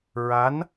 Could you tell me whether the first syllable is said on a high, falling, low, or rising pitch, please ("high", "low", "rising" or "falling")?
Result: rising